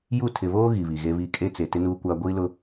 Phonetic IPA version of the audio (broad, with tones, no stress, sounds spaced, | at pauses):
j u˦˨ tʰ ɪ˨ β oː˦ ɣ i˨ β i˨ ɣ e˦ β i˦˨ kʼ e˦ t͡s e˨ t ɪ˦ n uː˦ kʷ aː˦ ɡʷ iː˦ l ʊ˦